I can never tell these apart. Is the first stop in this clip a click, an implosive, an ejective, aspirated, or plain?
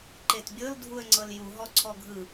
click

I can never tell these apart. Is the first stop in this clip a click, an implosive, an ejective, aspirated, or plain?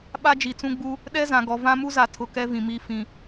implosive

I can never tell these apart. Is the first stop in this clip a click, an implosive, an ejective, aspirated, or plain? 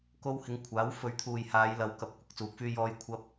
plain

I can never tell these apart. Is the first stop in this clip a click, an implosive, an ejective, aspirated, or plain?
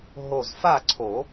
click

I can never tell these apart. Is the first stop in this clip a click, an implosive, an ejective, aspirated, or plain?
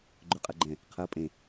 click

